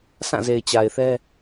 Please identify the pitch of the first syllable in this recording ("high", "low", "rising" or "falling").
falling